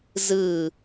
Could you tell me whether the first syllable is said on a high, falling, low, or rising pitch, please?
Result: falling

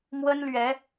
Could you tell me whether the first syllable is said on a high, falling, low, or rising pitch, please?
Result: high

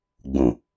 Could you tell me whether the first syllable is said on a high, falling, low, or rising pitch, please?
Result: low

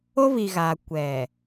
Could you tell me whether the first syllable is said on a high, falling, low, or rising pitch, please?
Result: high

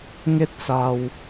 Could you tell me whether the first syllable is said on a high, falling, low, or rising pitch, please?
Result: falling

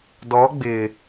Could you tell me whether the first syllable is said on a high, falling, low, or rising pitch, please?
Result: rising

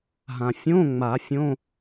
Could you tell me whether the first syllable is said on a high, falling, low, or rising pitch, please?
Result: low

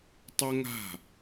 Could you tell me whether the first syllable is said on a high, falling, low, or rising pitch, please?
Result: high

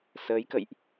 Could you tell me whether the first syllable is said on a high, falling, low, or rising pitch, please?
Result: rising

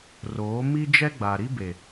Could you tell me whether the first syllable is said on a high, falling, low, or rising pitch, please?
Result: rising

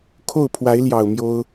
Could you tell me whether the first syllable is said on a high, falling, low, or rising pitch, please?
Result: falling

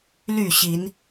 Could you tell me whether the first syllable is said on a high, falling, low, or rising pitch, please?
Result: falling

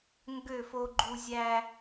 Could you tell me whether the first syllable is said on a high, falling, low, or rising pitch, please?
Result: falling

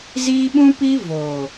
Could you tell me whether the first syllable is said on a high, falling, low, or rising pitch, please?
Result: high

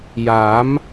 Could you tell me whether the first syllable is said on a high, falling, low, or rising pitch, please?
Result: rising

